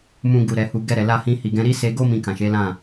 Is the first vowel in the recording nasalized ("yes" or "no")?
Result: yes